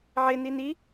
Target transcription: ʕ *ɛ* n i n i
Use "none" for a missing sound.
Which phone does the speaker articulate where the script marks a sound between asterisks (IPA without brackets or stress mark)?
ɪ